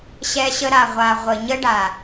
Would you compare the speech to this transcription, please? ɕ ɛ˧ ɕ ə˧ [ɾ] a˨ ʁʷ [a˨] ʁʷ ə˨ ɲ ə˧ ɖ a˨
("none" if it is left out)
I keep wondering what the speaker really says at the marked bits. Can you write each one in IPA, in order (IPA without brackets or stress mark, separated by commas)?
ɾ, a˨